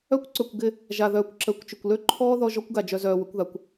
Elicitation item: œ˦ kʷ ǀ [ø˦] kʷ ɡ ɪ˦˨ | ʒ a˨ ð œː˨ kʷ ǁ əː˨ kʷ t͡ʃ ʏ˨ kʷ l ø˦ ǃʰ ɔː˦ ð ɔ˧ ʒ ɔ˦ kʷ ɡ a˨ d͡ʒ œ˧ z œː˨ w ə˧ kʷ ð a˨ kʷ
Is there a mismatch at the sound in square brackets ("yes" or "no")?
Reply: yes